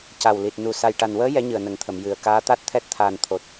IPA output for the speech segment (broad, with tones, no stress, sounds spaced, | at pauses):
c a˨˩ w l i˨˩ t̚ n u˨˩ s a˨˩ j ʈ a˨˩ n w əː˧˥ j ɛ˧˥ ɲ ɨ˨˩ ə̯ n ə˨˩˦ ŋ t̪ʰ ə˨˩˨ m j ɨ˨˩ ə̯ k aː˧˥ t̪ a˦˥ t̚ t̪ʰ ɛ˦˥ t̚ t̪ʰ aː˨˩ n t̪ʰ o˨˩ t̚